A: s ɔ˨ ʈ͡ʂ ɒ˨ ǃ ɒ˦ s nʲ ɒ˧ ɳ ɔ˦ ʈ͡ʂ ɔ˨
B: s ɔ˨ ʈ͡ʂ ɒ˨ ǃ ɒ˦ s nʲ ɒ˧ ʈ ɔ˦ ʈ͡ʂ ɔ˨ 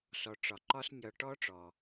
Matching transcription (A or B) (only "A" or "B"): B